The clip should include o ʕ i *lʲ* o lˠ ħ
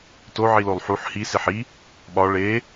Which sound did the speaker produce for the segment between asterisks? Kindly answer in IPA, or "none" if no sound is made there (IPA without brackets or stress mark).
l